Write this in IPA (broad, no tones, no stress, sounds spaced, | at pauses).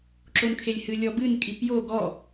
ǁ o n kʰ e lʲ h ɨ lʲ ɔ b ɨ n kʼ i p j o ɡ ɔ